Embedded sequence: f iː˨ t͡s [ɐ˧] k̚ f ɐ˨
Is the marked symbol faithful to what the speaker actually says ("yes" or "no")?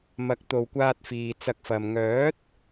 yes